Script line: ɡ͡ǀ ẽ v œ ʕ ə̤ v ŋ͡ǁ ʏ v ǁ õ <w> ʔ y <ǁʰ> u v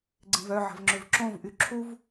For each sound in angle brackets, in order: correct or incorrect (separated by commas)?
incorrect, correct